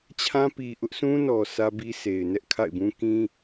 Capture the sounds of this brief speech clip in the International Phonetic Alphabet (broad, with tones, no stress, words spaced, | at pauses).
t͡ɕʰã˦pi˨ʔʊ˦ʔ sũ˦nɔ˨ sʰä˦bi˦sʰe˨ɪ̯ nɛ˦ʔkʰa̰˦˨ɪ̯bũ˦ kĩ˦